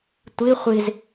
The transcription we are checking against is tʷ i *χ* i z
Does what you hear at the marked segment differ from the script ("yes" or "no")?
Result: yes